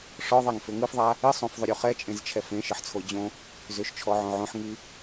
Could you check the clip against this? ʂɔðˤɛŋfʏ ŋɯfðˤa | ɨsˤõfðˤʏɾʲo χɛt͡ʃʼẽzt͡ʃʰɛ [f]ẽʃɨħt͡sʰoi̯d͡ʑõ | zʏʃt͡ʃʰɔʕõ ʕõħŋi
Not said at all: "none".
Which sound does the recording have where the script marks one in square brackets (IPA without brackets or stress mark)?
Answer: f